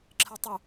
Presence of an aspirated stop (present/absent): present